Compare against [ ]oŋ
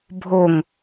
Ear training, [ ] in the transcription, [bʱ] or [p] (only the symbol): bʱ